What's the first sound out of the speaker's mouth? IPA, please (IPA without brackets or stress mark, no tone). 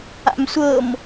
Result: a̰